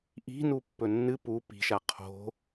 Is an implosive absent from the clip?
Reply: yes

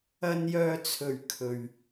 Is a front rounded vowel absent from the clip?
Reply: no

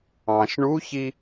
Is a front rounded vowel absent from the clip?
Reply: yes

